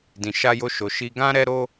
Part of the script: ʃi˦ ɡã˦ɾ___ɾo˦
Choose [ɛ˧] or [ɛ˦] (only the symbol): ɛ˦